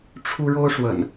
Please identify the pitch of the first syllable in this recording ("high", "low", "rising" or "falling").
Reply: high